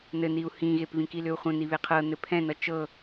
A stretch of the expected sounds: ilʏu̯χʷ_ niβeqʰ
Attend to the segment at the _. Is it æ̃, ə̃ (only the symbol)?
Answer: ə̃